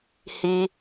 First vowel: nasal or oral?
oral